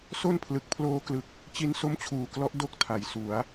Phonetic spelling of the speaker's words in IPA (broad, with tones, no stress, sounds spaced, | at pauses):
s o˥˩ n pʰ l ɯ˨˩ k̚ pʰ l oː˧ k l ɯ˨˩ k̚ | t͡ɕ i˦˥ n s o˦˥ m t͡ɕʰ uː˨˩ k l ɔ˦˥ ʔ d o˥˩ k̚ tʰ a˨˩ j s u˩˦ a̯